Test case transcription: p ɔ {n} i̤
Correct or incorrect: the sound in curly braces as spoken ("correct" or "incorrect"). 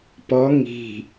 incorrect